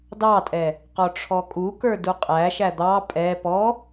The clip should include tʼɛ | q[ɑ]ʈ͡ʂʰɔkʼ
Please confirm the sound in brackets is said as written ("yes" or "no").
no